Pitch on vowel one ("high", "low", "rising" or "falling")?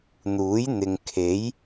rising